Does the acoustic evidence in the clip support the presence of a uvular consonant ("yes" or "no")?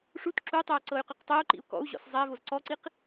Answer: yes